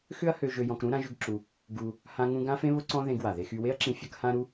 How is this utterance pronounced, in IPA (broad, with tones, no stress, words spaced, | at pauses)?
xʏ˥ɐ̯hø˧ ʒø˧jɔ̃˧kɾũ˥ ɾã˥ʒʏ˥ɡǁu˧ | ɡu˧ | hã˥ŋũ˥ ɡã˥fẽ˥βʊ˥ ǀɔ̃˥ ðẽ˧ɡwa˩ðe˧xy˧ we˥ɐ̯ǁĩ˧ fʲɐ˥khã˥ ɾu˥